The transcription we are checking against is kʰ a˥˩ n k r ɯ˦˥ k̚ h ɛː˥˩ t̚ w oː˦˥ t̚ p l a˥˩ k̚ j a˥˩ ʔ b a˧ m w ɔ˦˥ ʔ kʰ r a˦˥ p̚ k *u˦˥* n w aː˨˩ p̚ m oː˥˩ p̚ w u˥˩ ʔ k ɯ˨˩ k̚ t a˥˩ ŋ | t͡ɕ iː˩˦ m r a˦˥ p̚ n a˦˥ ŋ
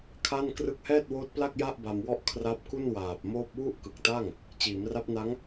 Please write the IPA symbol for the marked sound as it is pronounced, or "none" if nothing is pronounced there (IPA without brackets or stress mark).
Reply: u˥˩